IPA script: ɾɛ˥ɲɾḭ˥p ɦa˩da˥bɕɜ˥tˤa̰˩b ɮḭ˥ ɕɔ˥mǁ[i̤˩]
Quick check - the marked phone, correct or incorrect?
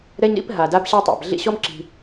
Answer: correct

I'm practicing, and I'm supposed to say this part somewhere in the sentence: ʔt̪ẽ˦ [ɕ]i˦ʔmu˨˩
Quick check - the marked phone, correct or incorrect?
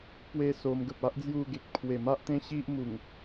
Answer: correct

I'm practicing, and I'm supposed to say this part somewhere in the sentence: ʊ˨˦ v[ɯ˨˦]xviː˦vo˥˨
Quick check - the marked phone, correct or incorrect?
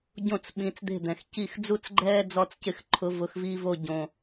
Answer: incorrect: ʊ˨˦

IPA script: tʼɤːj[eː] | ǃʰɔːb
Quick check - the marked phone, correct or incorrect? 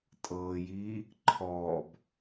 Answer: incorrect: iː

